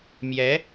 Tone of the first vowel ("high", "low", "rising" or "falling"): rising